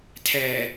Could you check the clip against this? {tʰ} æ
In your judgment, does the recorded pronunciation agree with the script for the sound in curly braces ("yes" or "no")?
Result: yes